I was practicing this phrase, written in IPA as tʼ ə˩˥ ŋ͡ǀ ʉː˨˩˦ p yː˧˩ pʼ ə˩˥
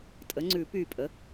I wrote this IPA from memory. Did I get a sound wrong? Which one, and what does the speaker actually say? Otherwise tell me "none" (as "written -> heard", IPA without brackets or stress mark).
none